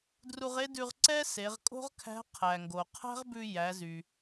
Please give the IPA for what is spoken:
dru˧ʁe˥dʉ˧ʁ ǀɛ˥se˩˧ʁkʼo̤˥ʁkʰæ̤˧˥ qʰæ˩ŋɡo˩ qʰæ̤˥ʁbʉ˧ jæ˩˧zy˩

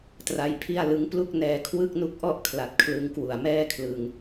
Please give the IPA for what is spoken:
tra˧jpʰi˥˩a̯lɯ˦˥ŋ plu˥˩k̚nɛː˧ kʰwɯ˥˩k̚nu˥˩k̚ʔɔ˥˩ʔkʰla˨˩t̚ kʰlɯ˧ŋkwu˨˩a̯mɛː˥˩kʰlɯ˧ŋ

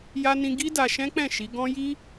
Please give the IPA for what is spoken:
ja˧nĩ˧ ɡi˦da˧ ʃɛ̃˦k͡pɛ̃˦˨ ʃi˨˦ ɡɔ̃˦ ji˦

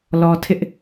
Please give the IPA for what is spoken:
lɔ˨ tʰɪ˦ʔ

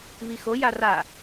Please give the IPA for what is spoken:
βixo jara

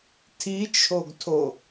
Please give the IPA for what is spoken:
tʰit͡ʃʰoɡtʰo

